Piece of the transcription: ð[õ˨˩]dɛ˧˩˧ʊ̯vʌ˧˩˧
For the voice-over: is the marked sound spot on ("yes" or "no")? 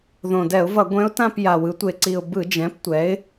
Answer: yes